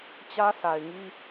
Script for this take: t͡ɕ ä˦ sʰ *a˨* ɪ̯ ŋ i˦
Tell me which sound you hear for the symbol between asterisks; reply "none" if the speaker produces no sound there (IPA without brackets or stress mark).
a˨